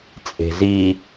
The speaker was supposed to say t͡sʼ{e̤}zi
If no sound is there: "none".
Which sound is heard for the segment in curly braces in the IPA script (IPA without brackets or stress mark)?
e̤